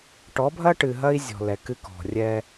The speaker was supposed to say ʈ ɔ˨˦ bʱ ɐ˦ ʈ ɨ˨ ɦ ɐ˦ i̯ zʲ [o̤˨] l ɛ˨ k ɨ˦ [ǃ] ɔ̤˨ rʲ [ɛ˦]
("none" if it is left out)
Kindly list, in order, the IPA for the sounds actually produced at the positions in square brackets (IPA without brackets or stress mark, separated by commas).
ɔ̤˨, k, ɛ˦